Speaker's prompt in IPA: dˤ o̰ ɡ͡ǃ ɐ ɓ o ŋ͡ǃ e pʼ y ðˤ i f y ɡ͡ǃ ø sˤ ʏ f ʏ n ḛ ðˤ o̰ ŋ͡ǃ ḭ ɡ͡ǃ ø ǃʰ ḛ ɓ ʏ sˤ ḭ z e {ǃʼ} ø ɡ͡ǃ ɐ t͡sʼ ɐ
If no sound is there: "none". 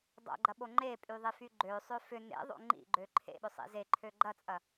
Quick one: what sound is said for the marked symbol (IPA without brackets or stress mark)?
ǃʰ